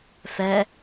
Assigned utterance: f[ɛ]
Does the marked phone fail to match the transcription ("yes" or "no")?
no